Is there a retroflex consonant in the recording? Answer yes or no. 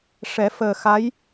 yes